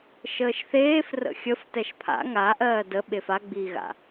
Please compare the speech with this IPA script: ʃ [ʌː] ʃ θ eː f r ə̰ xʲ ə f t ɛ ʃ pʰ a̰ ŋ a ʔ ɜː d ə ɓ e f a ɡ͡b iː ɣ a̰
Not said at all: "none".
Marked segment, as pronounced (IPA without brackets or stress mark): əː